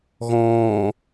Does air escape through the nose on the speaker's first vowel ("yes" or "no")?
yes